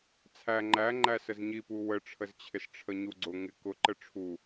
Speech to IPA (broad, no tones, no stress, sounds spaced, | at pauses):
t͡sʰ æ ŋ͡ǃ æ ŋ͡ǃ æ s ə z ɲ i p u w ə ʈ͡ʂʰ ə z t͡ɕʰ ɪ s ʈ͡ʂʰ ə ɲ u ɡ͡ǀ ʊ ŋ ɪ k ʊ ǃ ə ʈ͡ʂʰ u